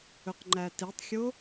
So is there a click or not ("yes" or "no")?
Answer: yes